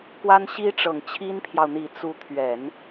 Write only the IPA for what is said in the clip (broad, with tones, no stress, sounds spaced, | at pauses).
k w a˥ n ɕ i˥ ʈ͡ʂ ɤ˨˩ ŋ t͡ɕʰ i˥ n pʰ j ɑ˨ ʊ̯ n̪ i˨˩ t͡s u˧˥ t̪ʰ ɥ ɛ˨˩˦ n